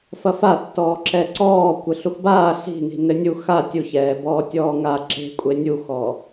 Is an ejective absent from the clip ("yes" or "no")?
no